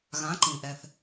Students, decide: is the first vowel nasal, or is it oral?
nasal